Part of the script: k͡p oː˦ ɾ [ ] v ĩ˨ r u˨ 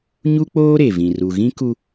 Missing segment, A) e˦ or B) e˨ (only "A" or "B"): B